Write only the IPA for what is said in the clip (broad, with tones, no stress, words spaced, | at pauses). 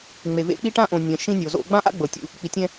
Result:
ŋ͡me˨ vḛ˦ k͡pi˦ʈã˦ʔõ˨ nʲɛ̃˨ ʃĩ˦nʲo˨zo̰˦ ɡ͡bã˦ʔa̰˦ɡ͡bɤ˨ tʲṵ˦ | k͡pi˨tʲɛ̃˦